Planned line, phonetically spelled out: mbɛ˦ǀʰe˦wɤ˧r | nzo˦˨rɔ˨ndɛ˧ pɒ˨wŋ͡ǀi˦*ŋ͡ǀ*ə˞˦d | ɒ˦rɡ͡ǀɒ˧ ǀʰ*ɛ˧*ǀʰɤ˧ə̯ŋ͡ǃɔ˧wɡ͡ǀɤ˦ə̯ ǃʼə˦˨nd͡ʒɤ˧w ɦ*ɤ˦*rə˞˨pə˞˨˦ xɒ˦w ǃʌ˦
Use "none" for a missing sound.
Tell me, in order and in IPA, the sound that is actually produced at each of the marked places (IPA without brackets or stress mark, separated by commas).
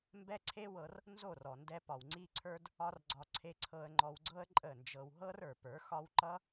ǀʰ, e˧, ɤ˦